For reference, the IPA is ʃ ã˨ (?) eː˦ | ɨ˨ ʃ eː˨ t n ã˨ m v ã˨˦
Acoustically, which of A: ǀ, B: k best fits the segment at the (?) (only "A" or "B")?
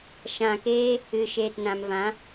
B